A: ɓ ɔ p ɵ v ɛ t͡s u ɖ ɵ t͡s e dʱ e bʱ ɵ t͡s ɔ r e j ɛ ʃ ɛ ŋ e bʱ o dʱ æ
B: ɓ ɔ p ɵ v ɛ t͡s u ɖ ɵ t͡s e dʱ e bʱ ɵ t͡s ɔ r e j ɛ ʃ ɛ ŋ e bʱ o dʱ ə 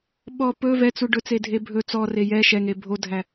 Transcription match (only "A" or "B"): A